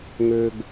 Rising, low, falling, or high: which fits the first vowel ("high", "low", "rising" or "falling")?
low